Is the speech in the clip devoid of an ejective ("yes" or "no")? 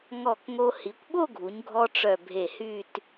yes